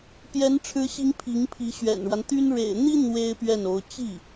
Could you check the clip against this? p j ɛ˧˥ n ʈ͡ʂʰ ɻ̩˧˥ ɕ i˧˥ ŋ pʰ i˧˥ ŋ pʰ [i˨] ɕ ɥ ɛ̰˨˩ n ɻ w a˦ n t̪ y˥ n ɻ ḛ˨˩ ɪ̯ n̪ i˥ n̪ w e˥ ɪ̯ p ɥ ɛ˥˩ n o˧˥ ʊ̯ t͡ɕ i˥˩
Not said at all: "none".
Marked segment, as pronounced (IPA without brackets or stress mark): i˧˥